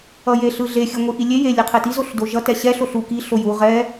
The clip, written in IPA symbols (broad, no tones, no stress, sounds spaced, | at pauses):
ʌ j e ɬ ɯ ɮ e xʲ ɯ ŋʷ i ʔ i lʲ e j e lʲ e qʰ e t i z o ɬ d o ʒ ʌ t ɛ ɕ ɛ ɬ o ɬ u k i ɬ o j u ʁ ɛ